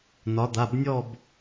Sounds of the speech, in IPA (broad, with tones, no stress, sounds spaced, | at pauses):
n ɒ˩˧ d̪ a˩˧˩ b nʲ ɔ˥˧ b